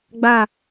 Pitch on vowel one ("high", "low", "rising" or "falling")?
falling